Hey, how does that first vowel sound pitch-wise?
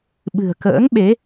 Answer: low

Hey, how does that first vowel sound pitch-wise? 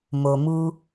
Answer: low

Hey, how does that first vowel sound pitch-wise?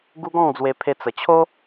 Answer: high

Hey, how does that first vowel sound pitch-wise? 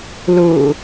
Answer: low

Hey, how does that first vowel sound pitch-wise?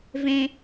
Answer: high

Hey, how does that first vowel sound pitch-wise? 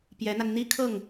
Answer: rising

